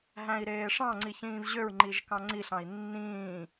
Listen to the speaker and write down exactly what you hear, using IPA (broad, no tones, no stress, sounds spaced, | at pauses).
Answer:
ɦ æ̃ i̯ ɾ eː ʂ ɑ̃ ŋ͡ǀ i ç ĩː v ʑ ø ɹ ŋ͡ǃ i ʒ k ɑ̃ ŋ͡ǀ i ɬ ɑ̃ i̯ nː ĩː